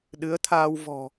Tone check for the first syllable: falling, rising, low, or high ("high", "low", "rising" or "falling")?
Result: rising